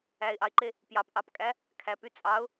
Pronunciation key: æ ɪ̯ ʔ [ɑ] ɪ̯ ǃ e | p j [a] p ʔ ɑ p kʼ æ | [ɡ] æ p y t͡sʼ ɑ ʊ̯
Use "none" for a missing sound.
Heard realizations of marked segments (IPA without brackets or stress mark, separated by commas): ɑ, ɑ, kʰ